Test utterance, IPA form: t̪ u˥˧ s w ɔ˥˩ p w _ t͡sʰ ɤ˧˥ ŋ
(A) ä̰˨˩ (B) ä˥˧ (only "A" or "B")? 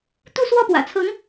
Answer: A